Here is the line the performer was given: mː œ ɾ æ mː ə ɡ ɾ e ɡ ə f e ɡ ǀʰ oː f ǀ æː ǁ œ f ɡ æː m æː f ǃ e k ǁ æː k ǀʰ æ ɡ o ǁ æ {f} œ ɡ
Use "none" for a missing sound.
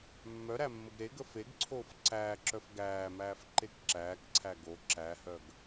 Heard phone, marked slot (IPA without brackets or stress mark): h